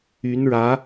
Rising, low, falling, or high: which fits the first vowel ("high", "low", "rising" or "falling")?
rising